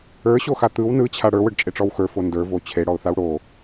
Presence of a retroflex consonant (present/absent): present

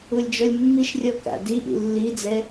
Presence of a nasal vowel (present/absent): absent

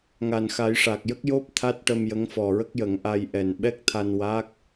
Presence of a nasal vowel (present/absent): absent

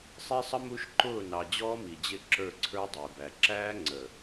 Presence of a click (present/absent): present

